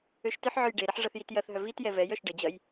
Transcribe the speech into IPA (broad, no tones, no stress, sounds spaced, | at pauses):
ø ʃ t ʏ ħ ʕ ø j ɖ e ɾ ɐ ħ ʐ ɐ θ j i t j ɐ θ ɦ œ v i t j ɛ v ɛ j œ ʃ ɖ ə d͡ʑ ɐ j